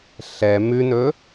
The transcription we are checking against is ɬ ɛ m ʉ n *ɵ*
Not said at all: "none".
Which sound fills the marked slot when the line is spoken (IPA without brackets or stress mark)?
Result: ɵ